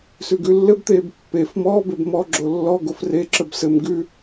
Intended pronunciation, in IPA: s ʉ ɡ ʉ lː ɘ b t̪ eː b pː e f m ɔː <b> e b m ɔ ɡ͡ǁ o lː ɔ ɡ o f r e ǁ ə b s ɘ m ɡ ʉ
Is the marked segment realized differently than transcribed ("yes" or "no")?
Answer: no